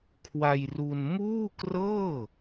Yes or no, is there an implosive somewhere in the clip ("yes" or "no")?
no